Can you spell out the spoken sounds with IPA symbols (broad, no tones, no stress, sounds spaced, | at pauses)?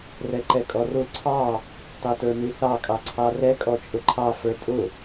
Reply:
r ɛ ǃ ɛ kʼ ɔ r ʊ ǀʰ ɑ | t ɑ t ə˞ n i θ ɑ kʼ ɑ ǀʰ ɑ r ɛ kʼ ɔ t͡ʃʼ ʊ ǃʰ ɑ f ə˞ tʼ ʊ